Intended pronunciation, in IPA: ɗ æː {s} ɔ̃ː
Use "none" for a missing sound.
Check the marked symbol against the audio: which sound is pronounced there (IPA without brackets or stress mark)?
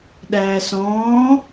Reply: s